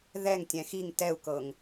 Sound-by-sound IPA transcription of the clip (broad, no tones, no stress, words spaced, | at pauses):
ðɛŋtʲɛ̃ xiŋ tɛu̯kɤŋ